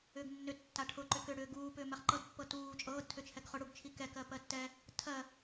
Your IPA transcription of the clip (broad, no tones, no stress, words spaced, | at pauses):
ʏːɡnːʏ tːaʈʰʊǃʏ kʏ ɽʏːɡuːp ʏːmɛχǃɤdpːɤ tuː t͡ʃʼɤːdtʰʏt͡ʃʰɛɡ χʊɽuɡt͡ʃʰi kɛkɜ pɜtːɛ | tʰɜ